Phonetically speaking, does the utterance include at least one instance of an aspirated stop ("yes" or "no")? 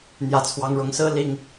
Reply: yes